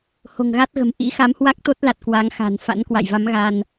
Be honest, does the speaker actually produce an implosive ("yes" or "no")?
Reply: no